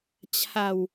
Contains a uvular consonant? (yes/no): no